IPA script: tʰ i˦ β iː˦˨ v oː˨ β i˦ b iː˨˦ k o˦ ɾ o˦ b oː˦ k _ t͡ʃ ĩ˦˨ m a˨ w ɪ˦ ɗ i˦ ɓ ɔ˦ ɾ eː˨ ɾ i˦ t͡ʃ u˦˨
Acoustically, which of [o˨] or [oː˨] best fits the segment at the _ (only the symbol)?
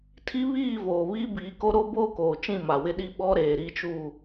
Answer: oː˨